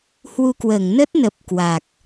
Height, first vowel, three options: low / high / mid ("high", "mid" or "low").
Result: high